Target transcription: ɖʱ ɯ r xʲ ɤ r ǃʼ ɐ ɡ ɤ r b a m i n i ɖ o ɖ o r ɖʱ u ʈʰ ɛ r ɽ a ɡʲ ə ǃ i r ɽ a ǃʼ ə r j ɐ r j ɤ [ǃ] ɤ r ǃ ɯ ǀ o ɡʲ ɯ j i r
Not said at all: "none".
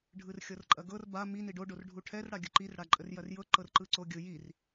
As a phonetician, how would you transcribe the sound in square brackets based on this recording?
ǃ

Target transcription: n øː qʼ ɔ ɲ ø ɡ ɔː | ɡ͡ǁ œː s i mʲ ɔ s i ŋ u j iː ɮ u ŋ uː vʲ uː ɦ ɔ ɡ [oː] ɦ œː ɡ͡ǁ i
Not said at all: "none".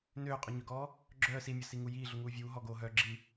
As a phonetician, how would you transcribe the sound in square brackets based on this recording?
oː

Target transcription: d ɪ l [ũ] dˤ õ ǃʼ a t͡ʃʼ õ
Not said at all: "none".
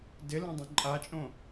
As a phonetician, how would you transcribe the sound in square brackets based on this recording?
õ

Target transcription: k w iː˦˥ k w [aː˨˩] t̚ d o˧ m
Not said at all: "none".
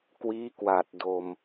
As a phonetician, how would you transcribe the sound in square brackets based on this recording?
aː˨˩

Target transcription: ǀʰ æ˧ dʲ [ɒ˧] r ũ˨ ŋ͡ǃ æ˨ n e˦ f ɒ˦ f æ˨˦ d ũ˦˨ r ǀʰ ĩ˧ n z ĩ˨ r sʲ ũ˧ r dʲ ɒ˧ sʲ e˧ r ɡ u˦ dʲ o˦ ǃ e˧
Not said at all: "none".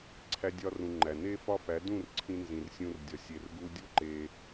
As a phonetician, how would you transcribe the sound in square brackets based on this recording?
ɒ˧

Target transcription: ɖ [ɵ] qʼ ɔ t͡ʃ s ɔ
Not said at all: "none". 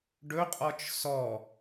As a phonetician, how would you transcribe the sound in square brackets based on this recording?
ɵ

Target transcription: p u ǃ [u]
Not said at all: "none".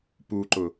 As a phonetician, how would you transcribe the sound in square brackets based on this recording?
ʊ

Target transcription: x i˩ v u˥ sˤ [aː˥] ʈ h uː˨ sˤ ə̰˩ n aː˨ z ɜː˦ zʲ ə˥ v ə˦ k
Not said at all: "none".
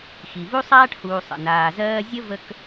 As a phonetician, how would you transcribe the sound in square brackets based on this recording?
aː˥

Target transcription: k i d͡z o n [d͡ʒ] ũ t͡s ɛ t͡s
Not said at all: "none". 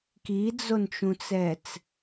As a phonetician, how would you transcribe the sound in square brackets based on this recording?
t͡ʃ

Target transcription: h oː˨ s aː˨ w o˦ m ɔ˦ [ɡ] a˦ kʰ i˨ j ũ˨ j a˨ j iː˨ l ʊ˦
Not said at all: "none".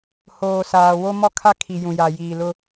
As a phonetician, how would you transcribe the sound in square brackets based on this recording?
kʰ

